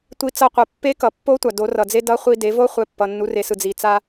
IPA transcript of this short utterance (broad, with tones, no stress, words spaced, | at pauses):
tʷi˧ t͡sʌ˧qʷɛ˩ pːe˧˥kʌ˩pːo˧˥tʷa˩ do˩˧rʌ˩d͡ze˧ dʌ˧˥χʷi˧ de˩˧vo˧˥χʷɛ˩˧ pːʌ˩nːu˩˧re˩˧sɯ˩ d͡zi˩t͡sa˧